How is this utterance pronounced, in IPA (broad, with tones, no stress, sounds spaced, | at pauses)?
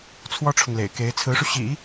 t͡sʰ w ɔ˥ ʈ͡ʂʰ ʊ˨ ŋ l ḛ˨˩ ɪ̯ k e˧˥ ɪ̯ t͡sʰ ɹ̩˧˥ ʂ u˧ ɕ ḭ˨˩˦